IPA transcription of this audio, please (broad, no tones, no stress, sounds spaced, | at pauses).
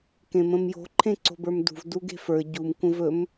k ẽ m ə̃ m j o̤ ǃʰ ẽ ǀ o̤ b ə˞ m d ṳ v d u ɡ e̤ f ə˞ ɟ u m kʷ ə̃ v ɵ m